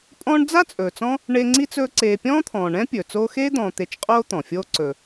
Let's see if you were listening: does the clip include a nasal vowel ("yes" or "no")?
yes